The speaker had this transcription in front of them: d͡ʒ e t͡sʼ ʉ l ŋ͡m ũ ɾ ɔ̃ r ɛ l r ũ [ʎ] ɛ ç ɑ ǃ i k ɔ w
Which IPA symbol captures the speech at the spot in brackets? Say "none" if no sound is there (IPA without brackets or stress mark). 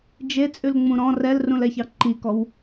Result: l